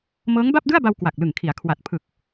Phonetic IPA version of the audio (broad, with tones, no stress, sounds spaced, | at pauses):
m ɤː˦˥ ŋ b a˥˩ p̚ d ɯ˥˩ a̯ b a˧ w k w a˨˩ k̚ l ɯ˨˩ ŋ kʰ i˩˦ a̯ kʰ w a˨˩ t̚ pʰ ɯ˨˩ k̚